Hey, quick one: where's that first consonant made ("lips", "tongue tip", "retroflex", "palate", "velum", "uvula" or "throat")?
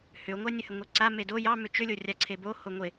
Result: throat